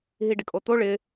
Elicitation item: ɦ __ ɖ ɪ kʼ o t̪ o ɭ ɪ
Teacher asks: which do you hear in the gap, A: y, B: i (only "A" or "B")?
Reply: B